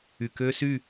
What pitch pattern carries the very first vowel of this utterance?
low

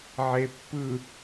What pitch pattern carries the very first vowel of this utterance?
low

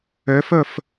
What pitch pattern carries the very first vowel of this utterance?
rising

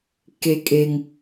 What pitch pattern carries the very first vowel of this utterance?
high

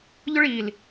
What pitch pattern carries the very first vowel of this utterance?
high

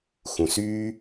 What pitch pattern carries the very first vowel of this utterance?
low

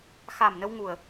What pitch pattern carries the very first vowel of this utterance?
low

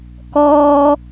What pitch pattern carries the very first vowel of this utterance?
low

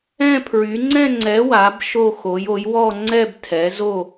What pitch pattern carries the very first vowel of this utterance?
falling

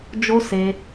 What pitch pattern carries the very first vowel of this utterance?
high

